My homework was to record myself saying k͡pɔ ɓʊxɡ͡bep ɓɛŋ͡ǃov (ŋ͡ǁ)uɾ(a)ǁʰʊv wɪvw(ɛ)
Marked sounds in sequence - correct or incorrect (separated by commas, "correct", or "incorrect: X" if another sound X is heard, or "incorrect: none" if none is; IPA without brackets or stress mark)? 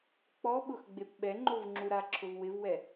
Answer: correct, correct, correct